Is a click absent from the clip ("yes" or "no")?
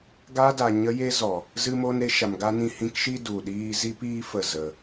yes